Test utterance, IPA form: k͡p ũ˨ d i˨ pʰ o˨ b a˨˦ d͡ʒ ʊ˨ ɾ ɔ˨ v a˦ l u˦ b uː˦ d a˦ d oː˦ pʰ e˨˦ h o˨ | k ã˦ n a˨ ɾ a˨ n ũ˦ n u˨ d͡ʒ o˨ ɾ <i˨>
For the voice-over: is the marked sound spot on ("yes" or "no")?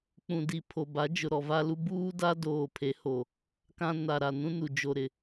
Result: no